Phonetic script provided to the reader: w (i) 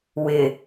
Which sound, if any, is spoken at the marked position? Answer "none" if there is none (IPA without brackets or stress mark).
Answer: ɪ